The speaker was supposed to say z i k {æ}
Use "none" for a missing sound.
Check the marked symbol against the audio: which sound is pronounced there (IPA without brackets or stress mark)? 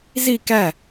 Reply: æ